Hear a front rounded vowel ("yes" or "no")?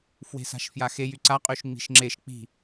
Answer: yes